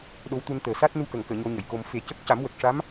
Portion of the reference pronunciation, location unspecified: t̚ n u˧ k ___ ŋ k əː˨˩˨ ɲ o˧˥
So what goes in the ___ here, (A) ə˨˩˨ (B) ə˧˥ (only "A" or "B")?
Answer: A